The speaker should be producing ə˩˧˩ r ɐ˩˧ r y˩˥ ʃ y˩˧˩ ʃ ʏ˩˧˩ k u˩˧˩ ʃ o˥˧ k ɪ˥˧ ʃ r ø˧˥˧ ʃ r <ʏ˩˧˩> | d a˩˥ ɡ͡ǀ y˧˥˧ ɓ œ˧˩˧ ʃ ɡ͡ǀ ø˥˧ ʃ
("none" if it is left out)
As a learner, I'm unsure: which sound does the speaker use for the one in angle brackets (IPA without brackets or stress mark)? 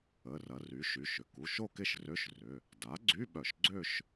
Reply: ʏ˩˧˩